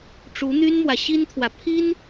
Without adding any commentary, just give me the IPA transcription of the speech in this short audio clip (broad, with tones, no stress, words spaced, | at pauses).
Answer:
ʈ͡ʂu˧˥n̪y˥nmwä˨ ɕi˥nt̪ʰwä˨ pʰi˥n